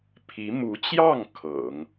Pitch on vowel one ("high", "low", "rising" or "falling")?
rising